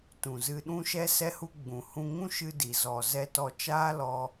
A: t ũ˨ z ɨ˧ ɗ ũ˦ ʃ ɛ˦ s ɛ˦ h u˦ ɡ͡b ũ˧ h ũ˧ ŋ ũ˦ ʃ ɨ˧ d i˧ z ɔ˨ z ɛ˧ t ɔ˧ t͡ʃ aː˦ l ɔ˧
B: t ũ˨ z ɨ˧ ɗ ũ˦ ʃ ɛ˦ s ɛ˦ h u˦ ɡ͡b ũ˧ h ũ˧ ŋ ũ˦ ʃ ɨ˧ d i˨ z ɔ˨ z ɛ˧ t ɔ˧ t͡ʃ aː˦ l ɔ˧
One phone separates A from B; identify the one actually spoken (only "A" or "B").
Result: B